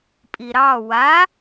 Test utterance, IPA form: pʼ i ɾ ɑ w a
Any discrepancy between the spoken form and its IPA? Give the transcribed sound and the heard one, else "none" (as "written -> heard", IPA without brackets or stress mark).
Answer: none